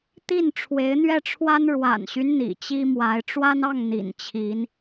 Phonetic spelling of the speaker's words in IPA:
t̪ i˥˩ n ʈ͡ʂʰ w e˧˥ ɪ̯ n̪ ɥ ɛ˥˩ ʈ͡ʂʰ w a˥ n ɻ w a̰˨˩ n ɕ y˦ n n̪ ḭ˨˩ t͡ɕ i˥ m w a˧˥ ɪ̯ ʈ͡ʂ w a˥ n ɑ˥˩ ŋ n̪ ḭ˨˩ n t͡ɕʰ i˧˥ n

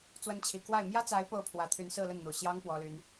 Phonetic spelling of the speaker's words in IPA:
t͡s w ə˧˥ n t͡ɕʰ i˨˩ k w a˥˩ ɪ̯ m j ä˥ t͡s a˧˥ ɪ̯ p o˥˩ ʊ̯ pʰ w ä˧˥ t̪ʰ y˧˥ n s ɹ̩˥˧ l ə˥˩ n n̪ u˨˩ ɕ j ɑ˥ ŋ p w ɔ˥ l y˥ n

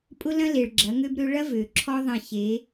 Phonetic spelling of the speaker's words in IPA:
pʼ ʊ˦ l ɐ̃˦ l e˨ ɭ ɡ͡ǁ ɐ˨˦ ŋ ø˦ b ɾ ø˦ ɭ ɐ˦ v ø˨ ǁʰ ɔ˦ ðˤ ɐ̃˦˨ ɕ e˨˦

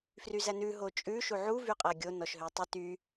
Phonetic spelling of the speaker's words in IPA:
f r y z æ n ʉ ɦ o t͡ʃʼ ʉ ʃ u ʕ u v y qʼ æ ɡʲ o n ɔ ʃ ɦ ø tˤ y t y

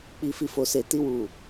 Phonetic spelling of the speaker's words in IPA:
k͡p i˨ f i˨ f o˨ s e˨ t i˧ w u˨

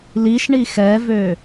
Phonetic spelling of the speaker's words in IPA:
l i ʃ ɳ i x ɛ v ø

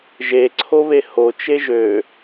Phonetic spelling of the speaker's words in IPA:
ʒ e ǀʰ o β e h o t͡ʃ e ʒ ø

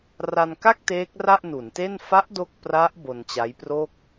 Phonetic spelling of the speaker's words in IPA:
r a˧ n k a˥˩ k̚ t eː˦˥ k̚ r a˥˩ ʔ n u˩˦ n t e˥˩ n f a˦˥ ʔ d o˥˩ k̚ p r a˦˥ ʔ b o˧ n t͡ɕ a˦˥ j p r o˥˩ k̚

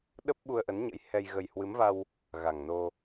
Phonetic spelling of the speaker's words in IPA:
ɗ ə˦˥ p̚ ɓ u˧ ə̯ ʔ ə˨˦ n ɲ ə̰˧˥ j h ɛ˧ j ɣ ə˧ j h w ɨ˨˦ m v a˧ w | ɣ a˨˩ ŋ n o˧

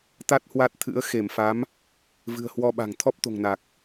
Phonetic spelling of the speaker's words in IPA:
t̪ a˦˥ t̚ h w a˦˥ t̚ t̪ʰ ɨ̰˧˥ ə̯ x e˧˩ m f a˨˦ m | v ɨ̤˨˩ ə̯ h w ɔ˧ ɓ a̤˨˩ ŋ t̪ʰ ɔ˦˥ p̚ t̪ o̤˨˩ ŋ n a˨˩ k̚

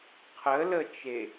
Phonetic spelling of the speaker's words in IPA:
qʰ ə l ə t͡ʃ e

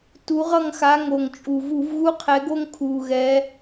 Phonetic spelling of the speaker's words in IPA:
t u˨˦ ʁ ʌ˦˨ ŋ x a˨˦ ŋ o˨˩ ŋ t͡ʃʼ u˨˩ v u˧˩˧ v ɣ u˦ qʰ ɛ˨˦ ɡ o˦ ŋ kʰ u˨˩ ɣ ɛ˨˦

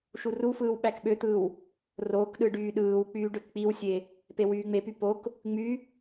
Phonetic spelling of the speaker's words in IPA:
ʃ u r u f ɯː w ɓ æ k ɓ ø t̪ ɯː w | r oː k ɗ ɯ ɖ yː ɗ ɯː w k͡p yː ɖ ø k k͡p i w sʲ e | p e w yː ŋ͡m e p y p o k | ŋ͡m y

